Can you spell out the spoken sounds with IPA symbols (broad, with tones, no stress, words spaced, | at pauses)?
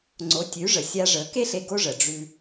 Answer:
ŋ͡ǀo˩˥tʲʉ˩˥ ʐə˩ sʲa˧ʐə˩˥ke˥ɬe˧ ɡo˥ʐə˩ ɖ͡ʐʉ˧